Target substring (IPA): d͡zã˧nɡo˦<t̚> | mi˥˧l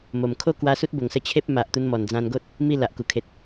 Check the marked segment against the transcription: correct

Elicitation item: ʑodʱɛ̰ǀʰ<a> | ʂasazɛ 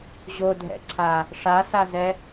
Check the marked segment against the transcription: correct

